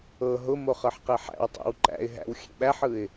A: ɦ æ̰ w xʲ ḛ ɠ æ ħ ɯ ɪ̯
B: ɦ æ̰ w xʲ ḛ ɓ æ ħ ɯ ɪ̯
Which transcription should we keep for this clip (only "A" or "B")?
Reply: B